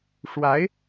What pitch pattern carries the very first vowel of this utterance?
rising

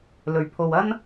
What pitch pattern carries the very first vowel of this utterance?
low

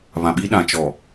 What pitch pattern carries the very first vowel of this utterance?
low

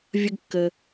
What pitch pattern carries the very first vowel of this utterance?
low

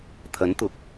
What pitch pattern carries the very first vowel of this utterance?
rising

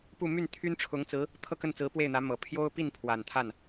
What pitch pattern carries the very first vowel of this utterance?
falling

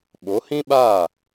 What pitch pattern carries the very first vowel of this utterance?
rising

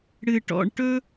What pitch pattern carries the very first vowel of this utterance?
low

